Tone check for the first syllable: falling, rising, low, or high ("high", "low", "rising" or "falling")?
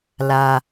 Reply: low